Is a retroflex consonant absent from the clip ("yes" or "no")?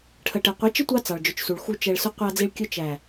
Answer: no